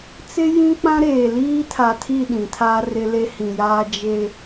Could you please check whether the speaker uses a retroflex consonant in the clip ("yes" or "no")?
no